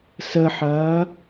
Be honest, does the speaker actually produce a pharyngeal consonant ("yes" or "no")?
yes